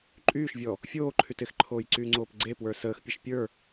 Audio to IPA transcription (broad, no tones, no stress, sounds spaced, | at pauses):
ǃʼ yː ʃ vʲ ɔ | fʲ oː ǃʰ y t ɪ x ǃʰ oː j ǀ yː ŋ͡ǀ oː p ɡ͡ǀ e p w ə˞ s əː x pʲ ə ʃ pʲ ə˞